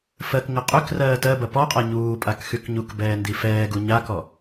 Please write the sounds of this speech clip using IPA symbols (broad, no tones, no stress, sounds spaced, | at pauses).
f ɜ k ŋ ə qʼ ʏ k r ɜː t ɜ b ɐ p ɔ qʼ a ɲ uː pʼ a k x y k ɲ u k b ɛː n d i f ɛː ɡ u ɲ a k ɔ